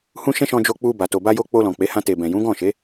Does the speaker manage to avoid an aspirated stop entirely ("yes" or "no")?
yes